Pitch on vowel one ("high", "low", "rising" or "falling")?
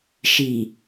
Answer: low